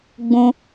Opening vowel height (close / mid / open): close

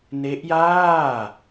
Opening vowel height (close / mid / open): mid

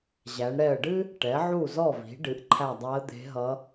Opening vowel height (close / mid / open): open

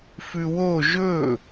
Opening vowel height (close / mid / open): close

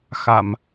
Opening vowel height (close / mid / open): open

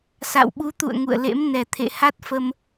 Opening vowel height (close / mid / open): open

